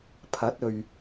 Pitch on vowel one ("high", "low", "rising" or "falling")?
rising